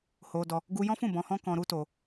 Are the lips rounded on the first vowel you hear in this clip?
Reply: yes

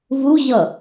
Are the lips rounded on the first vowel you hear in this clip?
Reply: yes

